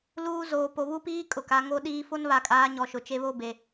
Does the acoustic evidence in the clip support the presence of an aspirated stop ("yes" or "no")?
no